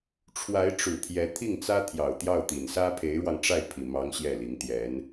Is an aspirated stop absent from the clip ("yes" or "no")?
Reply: no